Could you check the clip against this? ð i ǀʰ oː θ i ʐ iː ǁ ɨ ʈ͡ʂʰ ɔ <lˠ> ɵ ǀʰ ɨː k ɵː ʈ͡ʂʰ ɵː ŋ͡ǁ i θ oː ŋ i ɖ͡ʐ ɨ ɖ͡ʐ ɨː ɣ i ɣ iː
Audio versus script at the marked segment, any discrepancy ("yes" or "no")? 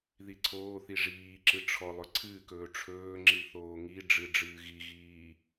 no